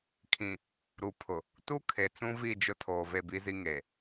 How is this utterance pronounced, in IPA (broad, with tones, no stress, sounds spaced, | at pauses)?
kʰ ĩ˨ | ɾ u˨ pʰ ʊ˨ | t u˦ kʰ e˨ t͡s ũ˦ v i˦˨ d͡ʒ ʊ˦ tʰ oː˨ v e˦˨ b i˦ z i˦ ŋ e˨